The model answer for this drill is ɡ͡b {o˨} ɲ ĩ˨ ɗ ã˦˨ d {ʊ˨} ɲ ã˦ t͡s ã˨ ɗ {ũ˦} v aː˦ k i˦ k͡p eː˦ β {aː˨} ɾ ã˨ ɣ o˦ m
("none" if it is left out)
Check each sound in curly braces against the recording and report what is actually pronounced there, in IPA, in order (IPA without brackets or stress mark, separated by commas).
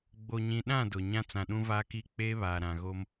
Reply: o˨, ʊ˨, ũ˦, aː˨